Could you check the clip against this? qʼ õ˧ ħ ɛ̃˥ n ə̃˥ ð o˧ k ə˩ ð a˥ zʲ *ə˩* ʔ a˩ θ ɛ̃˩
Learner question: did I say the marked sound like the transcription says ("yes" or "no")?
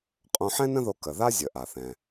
yes